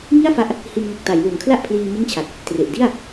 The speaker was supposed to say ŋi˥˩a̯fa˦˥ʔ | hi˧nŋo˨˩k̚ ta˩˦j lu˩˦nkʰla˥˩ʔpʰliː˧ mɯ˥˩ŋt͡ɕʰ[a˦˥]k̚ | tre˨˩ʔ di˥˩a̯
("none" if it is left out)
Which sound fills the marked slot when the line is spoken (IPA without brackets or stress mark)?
a˨˩